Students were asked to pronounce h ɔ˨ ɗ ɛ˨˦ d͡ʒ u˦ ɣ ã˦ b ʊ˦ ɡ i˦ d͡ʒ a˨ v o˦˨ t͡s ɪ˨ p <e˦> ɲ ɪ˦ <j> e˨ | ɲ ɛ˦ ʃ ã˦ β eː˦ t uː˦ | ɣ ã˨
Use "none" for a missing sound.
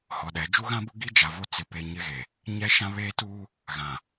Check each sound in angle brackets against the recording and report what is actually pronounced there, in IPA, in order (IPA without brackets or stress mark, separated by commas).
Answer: e˨, ɣ